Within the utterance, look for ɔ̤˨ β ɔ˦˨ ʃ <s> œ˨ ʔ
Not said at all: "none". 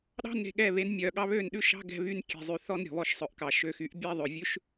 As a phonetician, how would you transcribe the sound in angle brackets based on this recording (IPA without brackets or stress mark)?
sˤ